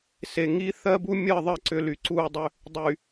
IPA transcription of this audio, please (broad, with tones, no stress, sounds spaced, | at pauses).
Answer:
s e˨ ŋ i˦ θ ɜ˦ b u˦ mʲ ɜ˦˨ ðˤ ɜ˦˨ ǀ ʏ˦ l y˨ ǀ uː˦˨ dˤ ʏ˦ | dˤ y˨